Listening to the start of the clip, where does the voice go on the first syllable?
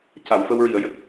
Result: low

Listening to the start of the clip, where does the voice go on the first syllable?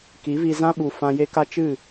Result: rising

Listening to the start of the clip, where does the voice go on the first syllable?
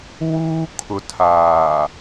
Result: high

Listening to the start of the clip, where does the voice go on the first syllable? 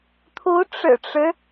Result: rising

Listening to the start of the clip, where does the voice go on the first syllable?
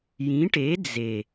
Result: rising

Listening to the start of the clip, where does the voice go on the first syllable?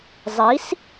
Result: rising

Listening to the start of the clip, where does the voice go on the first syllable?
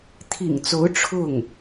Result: low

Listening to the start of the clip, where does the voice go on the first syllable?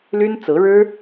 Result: high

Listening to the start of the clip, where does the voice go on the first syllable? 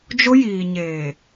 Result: high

